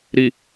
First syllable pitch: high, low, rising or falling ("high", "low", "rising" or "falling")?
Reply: low